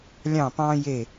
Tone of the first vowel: falling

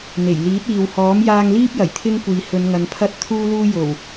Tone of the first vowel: low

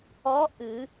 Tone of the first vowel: rising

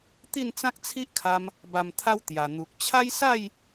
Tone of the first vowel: falling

